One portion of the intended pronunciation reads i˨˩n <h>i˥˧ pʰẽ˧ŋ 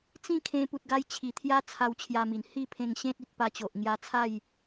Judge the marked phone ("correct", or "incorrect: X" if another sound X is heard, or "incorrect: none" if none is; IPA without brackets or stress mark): correct